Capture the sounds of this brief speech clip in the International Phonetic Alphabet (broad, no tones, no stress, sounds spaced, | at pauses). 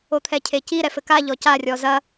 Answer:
o t̪ʰ ɛ cʰ e c i ɾ ɛ f ɘ k a ʎ ɔ c a rʲ ɔ z ɐ